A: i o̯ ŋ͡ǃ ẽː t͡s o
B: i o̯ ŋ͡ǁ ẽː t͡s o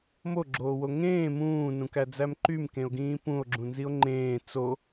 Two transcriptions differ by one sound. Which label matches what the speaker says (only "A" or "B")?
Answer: A